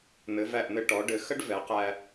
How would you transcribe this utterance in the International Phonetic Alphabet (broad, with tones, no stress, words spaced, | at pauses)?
n̪ɘ˩˧væ˧˩ʔn̪ɘ˧ ʈɔ˩˧ɖɘ˩˧ xə˥ɖvɛ˩˧qæ˧